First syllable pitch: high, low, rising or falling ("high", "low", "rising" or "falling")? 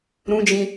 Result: high